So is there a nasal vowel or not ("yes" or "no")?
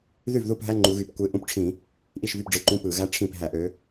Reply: yes